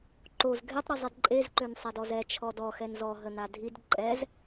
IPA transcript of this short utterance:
ǃoz ɡʱetˤ ɾizˤidǃʼez ǃønsˤɛdɔzɛ t͡ʃʰɔdɔ xɛnzɔ ɦənadʱid ǃʼɛz

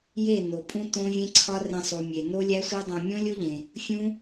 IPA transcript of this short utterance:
je˦˨no˨ pʼũ˦tõ˦vʲẽ˦ǀʰɒ˦ rẽ˧sˤu˨mʲe˨ no˦ lʲæ˦sʷe˦dˤõ˧ mʲõ˦lʲo˦ʎẽ˨ | fʲũ˦

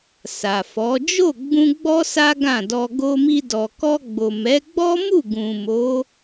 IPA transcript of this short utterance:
sa˨fɔ˨˦ d͡ʒo˦˨ɡ͡bũ˧ ɡ͡bɔ˦ sa˦ɡã˦˨dɔ˧ ɡo˧mi˧dɔ˨ kɔ˧ɡ͡bo˨mɛ˨˦ ɡ͡bɔ˦mu˦˨ɡũ˨ mo˨˦

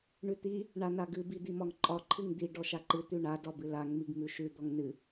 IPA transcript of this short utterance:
ɳʉt̪i | ɳanaɡɨ bid̪imɒŋǃʼɒ ǃʰɨŋd̪i ɖɔʃaǃɨ t̪ʉɳa dɒbɨlaŋ miɡmʉʃʉ d̪ɔŋnɨ

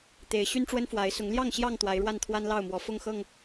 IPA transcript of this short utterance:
t̪e˨˦ɪ̯ ɕy˦nʈ͡ʂwə˦nfwa˨˦ɪ̯ sʊ˨˦ŋljɑ˥˨ŋɕjɑ˥˨ŋ t̪wa˨˦ɪ̯ɻwa˥˨nt̪ʰwa˦n lɑ˥˨ʊ̯mwɔ˨˦ fʊ˥˨ŋxɤ˥˨ŋ

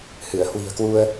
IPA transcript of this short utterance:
hɨ˧˩ə̯ hwi̤˨˩ə̯kwu˧ə̯

